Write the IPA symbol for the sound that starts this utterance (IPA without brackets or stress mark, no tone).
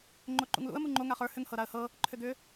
ŋ͡ǃ